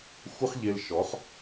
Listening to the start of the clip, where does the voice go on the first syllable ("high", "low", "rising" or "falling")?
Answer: high